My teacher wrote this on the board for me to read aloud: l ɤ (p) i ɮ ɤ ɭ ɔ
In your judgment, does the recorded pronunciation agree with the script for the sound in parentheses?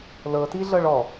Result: no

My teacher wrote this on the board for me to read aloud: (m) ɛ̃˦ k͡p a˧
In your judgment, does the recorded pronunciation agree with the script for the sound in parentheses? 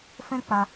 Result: no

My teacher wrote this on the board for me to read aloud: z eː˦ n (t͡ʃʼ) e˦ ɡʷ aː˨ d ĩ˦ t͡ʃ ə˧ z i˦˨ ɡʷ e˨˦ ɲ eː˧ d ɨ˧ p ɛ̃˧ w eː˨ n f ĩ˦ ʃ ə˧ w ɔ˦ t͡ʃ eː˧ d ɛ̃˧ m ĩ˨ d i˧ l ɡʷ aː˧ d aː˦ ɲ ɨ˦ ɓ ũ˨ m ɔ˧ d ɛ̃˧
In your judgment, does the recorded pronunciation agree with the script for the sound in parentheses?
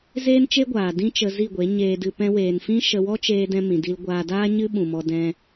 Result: no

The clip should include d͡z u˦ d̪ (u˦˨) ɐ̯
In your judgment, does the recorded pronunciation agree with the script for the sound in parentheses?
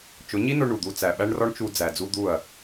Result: yes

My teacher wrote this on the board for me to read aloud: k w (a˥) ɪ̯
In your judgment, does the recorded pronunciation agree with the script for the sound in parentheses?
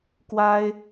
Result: yes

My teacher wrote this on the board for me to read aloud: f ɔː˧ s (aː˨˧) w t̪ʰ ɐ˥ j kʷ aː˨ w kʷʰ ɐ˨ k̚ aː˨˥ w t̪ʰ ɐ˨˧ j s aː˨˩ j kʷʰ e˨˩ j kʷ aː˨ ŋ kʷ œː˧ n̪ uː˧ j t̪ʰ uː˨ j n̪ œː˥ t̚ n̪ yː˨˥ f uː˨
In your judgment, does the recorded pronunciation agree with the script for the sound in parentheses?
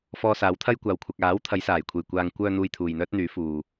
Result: no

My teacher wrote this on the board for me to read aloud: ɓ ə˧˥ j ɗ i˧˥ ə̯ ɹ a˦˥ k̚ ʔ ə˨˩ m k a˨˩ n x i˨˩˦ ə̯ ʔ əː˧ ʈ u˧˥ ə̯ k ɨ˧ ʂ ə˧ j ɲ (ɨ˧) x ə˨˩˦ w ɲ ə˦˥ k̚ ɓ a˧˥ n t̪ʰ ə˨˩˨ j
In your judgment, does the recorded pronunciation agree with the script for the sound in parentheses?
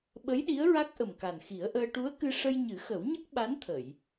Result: no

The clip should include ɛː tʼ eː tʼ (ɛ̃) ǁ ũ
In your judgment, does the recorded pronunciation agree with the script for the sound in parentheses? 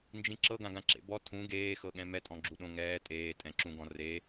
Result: yes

